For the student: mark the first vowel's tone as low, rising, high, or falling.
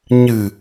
low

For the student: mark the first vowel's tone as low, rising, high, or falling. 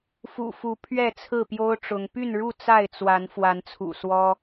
low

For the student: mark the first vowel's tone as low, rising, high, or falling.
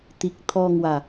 low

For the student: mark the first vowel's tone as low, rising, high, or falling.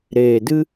low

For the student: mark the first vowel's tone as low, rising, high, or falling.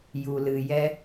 low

